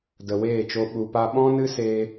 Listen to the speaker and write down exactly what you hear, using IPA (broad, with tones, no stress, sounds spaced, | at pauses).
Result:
d ə˨ w eː˦˨ t͡ʃ o˧ ɓ u˨ p a˧ ɓ ɔ̃˦ n ɨ˦ s eː˧